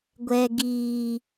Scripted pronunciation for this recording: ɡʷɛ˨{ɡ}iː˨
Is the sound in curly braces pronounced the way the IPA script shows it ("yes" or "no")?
yes